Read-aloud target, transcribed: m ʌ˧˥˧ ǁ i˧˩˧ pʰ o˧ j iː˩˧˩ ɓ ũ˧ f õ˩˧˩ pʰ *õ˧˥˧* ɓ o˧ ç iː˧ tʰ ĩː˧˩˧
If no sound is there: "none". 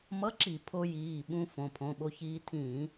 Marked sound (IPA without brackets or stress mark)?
õ˩˧˩